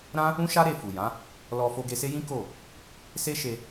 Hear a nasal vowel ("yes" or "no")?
yes